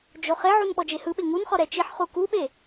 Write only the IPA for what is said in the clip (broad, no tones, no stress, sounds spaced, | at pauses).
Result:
d͡ʒ o χ e ʕ u n ɓ ɔ d͡ʒ e h ɯ ɓ e ŋ u n χ ɔ ɾ ɛ t͡ʃ i ħ χ u k u ɓ e